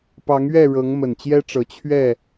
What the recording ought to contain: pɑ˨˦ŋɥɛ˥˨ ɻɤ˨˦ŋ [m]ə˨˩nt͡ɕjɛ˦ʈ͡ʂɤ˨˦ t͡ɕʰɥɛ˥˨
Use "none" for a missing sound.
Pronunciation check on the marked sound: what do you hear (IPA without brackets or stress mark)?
m